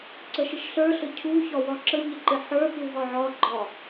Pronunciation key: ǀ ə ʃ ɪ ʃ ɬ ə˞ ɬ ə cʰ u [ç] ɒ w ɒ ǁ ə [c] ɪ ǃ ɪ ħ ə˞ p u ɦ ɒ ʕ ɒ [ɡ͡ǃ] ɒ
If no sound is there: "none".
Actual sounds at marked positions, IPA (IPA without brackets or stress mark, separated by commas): ç, ɲ, ɡ͡ǃ